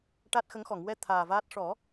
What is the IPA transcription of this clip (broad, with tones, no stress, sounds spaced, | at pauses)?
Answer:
ʈ a˦˥ t̚ x ə˧˥ ŋ x ɔ˨˩˨ ŋ w ɛ˧ t̪ʰ aː˨˩ v aː˦˥ t̚ ʂ ɔ˨˩˦